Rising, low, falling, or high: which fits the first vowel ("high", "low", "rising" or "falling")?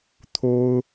high